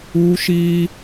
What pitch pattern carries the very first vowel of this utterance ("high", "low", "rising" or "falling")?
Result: high